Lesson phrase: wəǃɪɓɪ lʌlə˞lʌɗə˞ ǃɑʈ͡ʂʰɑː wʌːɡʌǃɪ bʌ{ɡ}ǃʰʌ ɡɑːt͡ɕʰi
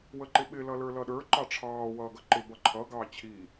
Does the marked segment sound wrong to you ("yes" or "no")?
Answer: yes